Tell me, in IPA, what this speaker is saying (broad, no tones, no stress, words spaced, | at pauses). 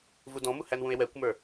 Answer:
vudɔ̃mu hænwũe̯wɛkʷmə˞